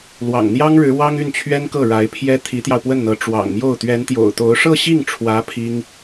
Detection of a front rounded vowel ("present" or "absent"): present